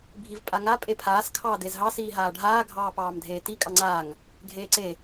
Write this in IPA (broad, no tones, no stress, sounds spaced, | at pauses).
bʱ i v pʼ a ŋ a pʼ e pʰ aː s kʰ ɑː d e z ɦ ɑ s iː ɦ aː ɖʱ aː ɡʱ ɑː p ɑː m dʱ eː t i kʼ ɑ ŋ͡ǀ aː ŋ | ɡʱ eː ǀ e